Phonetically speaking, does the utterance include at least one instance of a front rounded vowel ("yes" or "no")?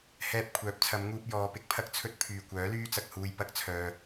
yes